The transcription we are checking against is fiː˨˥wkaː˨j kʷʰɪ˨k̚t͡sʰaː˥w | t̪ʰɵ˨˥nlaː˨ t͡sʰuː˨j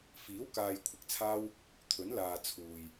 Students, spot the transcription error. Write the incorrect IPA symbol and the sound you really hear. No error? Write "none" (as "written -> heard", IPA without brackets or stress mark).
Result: none